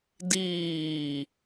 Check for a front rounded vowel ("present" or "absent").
absent